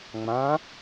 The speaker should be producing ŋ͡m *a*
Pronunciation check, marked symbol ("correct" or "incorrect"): incorrect